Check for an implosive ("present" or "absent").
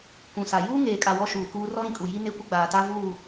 absent